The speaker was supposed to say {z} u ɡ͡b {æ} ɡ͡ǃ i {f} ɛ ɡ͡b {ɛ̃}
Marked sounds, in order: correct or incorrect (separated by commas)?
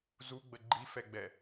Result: correct, incorrect, correct, incorrect